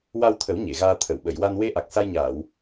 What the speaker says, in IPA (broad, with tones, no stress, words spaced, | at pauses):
wa˧wt̪ʰə˨˩˦w ɲe˨˩˨ɣaː˧ t̪ʰə˨˩˨wɓə˨˩˨jwa˧n we˧ʔa˨˩k̚ sa˧jɲaː˨˩˨w